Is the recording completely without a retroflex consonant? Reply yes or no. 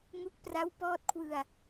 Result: yes